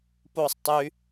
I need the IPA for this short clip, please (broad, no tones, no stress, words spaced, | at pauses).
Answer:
posˤ tˤy